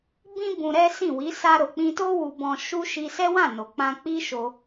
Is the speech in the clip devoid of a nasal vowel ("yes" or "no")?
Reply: no